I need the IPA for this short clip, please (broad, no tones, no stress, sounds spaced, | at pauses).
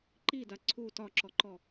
ǃ i d a ǀʰ u t ɒ ǁ ɔ ǃ ɔ